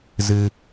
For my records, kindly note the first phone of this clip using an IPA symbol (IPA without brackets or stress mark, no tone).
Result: z